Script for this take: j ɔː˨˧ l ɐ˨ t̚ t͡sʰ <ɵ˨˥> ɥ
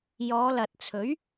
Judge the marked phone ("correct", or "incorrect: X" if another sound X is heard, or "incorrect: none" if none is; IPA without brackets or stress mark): correct